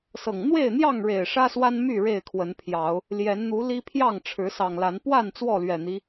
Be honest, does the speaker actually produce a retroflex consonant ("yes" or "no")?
yes